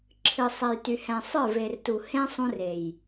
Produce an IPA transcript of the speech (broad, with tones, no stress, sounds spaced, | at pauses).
ǁʰ ɨ˨ sˤ ɛ˨ j t y˨ h ɛ̃˨ sˤ ə˞˦˨ v e˨ r t u˨ h ẽ˦ sˤ ũ˦ r e˨ j